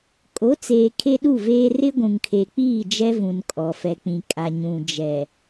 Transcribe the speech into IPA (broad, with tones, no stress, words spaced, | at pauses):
kʼo˨˦t͡seː˨ kʰe˦ɗu˦˨veː˦ rɪ˦ɡʷũ˨ŋkʰe˨k͡piː˦˨ d͡ʒɛ˦vũ˨nkʼɔ˨fɛ˨ k͡pĩ˨kʼa˨ɲũ˨ d͡ʒɛ˨